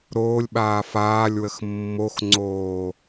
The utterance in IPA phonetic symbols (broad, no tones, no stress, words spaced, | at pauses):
ɾoːlʲɓaː faːlʲwəx mːoxŋ͡ǀoː